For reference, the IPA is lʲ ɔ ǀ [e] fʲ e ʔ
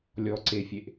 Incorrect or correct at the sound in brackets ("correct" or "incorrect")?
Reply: correct